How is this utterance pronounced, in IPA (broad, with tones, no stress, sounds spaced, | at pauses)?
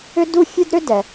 ʏ˥ d u˥ fʲ ø˥ d ɾ ʏ˥ d ɛ˩